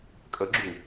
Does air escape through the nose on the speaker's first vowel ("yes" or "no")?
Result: no